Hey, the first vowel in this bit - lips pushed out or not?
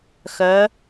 yes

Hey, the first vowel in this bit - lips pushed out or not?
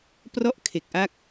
yes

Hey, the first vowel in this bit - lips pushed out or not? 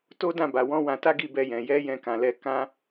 yes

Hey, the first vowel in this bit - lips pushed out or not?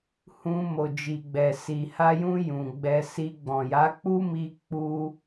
yes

